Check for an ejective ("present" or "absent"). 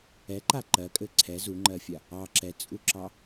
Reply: present